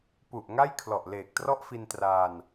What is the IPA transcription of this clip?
p u˨˩ ʔ ŋ a˥˩ j kʰ l ɔ˨˩ ʔ l eː˨˩ k̚ t r ɔ˥˩ ʔ f i˧ n t r aː˧ n

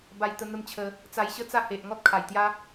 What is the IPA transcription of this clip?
b a˧ j t̪ ə˧ n̪ ə˦ m t͡ɕʰ ə˧ | t͡s a˧ j ɕ ə˦ t͡s a˥˧ h e˨ ʔ ŋ ɔ˦ t̚ kʰ a˨˩ j t̪ j a˦

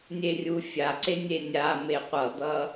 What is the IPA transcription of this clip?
nʲ e rʲ u fʲ a ǀ e nʲ e nʲ a m e qʷ ʌ d̪ ʌ

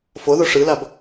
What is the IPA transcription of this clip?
f o ð o ʂ ɯ l a b

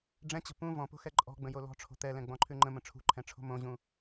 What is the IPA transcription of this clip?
ɖ͡ʐ ɛ̃ t͡ɕ ə̤ p ũ v ɔ̃ p o̤ x ɛ ǃʼ ɔ̤ ɡ͡b ə̃ j o l ɔ̤ ʈ͡ʂʰ o̤ t̪ ɛ l ɛ̃ ɡ͡b ɔ̃ ǃʰ ʉ ŋ͡ǃ ə̃ m ə̃ ʈ͡ʂʰ ṳ ǃʰ ɛ̃ ʈ͡ʂʰ o̤ m õ ʑ ũ

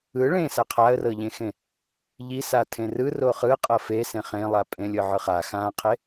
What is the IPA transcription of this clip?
ɯ ɭ ẽ s a qʰ a ə̯ r ɤ ʎ ẽ x ẽ | ʎ i s a tʰ ẽ r ɯ r o χ ɯ qʼ ɤ f e s ẽ χ ẽ lˠ a pʼ ẽ lʲ ɤ ʕ ɯ χ a x ã qʰ e

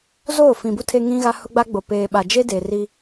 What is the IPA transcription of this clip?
z oː˦˨ f ĩ˨ b u˦ tʰ e˦ ŋ ĩ˦ ɣ a˦ h ʊ˦ ɡ͡b a˦ ɡ͡b o˨ p eː˨ ɓ a˨ d͡ʒ e˦ d eː˨ r i˦

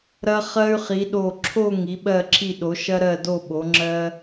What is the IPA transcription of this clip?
ɾ ɐ˧ χ ɜ˧ y̯ χ i˩˧ ɗ o˧˩ ǁʰ o˥˧ ŋ i˩˧ ɓ ɜ˧˩ ǁʰ i˧˩ ɗ o˩˧ ʃ ɐ˧ ɾ ɜ˧˩ d o˧˩ ɓ o˩˧ ŋ͡ǁ ɜ˧

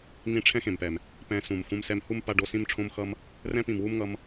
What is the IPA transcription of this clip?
ŋ ĩ˦ ʈ͡ʂʰ ɛ̃˦ x ẽ˨ m p ɛ˨ m | p ɛ̃˧ s ũ˨ m x ũ˧ m s ɛ˧ m h u˦ m p a˧ ɖ o˧ s ĩ˦ m ʈ͡ʂʰ õ˦ m x ʌ˦ m | r ɛ̃˦ p ĩ˨ m w u˦ m ŋ ʌ˧ m

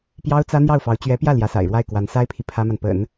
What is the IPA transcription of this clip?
p j ɑ˥ ʊ̯ t͡s ä˥ n̪ j ɑ˥˩ ʊ̯ f ɑ˧˥ ʊ̯ t͡ɕ ɥ ɛ˧˥ p j ä˥˩ l j ä˧˥ s a̰˨˩ ɪ̯ ɻ w a˥˩ ɪ̯ k w a˧˥ n s a˥ ɪ̯ pʰ i˨ pʰ ä˥ m a˨ n p ə̰˨˩˦ n

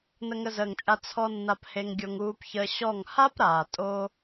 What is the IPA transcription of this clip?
n ə˧ ŋ ə˧ z əː˨ ŋ t͡ʃʼ a˧ t͡sʰ ɔ˦ nː a˧ p h e˧ ŋ ɡʲ o˧ ŋ uː˧ p ç əː˧ ɕ ɔ˦˨ ŋ h a˦ p ɾ aː˨ tʼ o˧

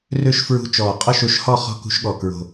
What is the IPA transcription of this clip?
r ø˥˨ ʃ f ɹ ṳ˧˥ t͡ʃ ɔː˨˩ qʼ ɔ˥˨ ʃ o˧˥ ʃ h ɔ˥˨ χ ɔ̤˥˨ k ṳ˧˥ ʃ ɠ ɔ˨˩ k ɹ o̤˨˩

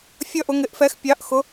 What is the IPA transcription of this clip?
fʲ ʌ˥˧ ʔ ʊ˨˥ ŋ ɪ˨˥ ʔ f ɛ˨˥ x pʲ ɑ˨˥ ʔ x ʊ˨˥

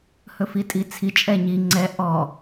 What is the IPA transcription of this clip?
h ɵ f i tʼ i t͡sʰ i t͡ʃʼ ɛ ɲ i ŋ͡ǀ ɛ ʔ ɔ

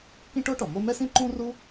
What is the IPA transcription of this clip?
k ĩ˥ ʈ o˥ ʈ ɔ˩ m o˥ m ɛ˥ s ĩ˥ ǃ ũ˥ r u˥

